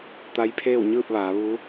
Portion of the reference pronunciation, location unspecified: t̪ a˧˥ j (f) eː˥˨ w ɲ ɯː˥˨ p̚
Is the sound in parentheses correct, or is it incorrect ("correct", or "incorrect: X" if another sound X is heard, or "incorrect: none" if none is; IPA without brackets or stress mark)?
incorrect: pʰ